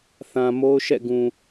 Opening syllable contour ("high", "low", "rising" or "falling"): low